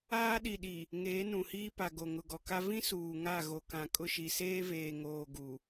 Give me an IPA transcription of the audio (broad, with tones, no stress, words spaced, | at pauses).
aː˦ɗi˨ɗi˨ | ŋeː˨˦nũ˨hiː˦pa˨ ɡo˨ ŋʊ˨ɡɔ˨ka˦ vĩ˦ suː˨ŋa˦˨ ɣo˨kã˨ kʼʊ˦ʃi˨ seː˦veː˨ŋoː˨ ɡu˨